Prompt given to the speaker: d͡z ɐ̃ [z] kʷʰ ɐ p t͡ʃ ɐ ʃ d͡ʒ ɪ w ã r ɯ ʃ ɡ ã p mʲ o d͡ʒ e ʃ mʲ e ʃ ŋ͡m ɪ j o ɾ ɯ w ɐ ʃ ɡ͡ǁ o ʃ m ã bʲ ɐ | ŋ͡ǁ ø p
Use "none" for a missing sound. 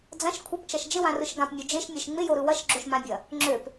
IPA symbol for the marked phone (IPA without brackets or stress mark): ʃ